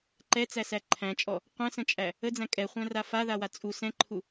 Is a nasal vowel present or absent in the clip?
present